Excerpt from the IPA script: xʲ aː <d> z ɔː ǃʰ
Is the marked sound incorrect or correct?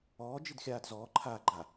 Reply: correct